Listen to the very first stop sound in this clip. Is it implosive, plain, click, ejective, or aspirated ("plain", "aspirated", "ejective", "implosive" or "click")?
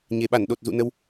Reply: implosive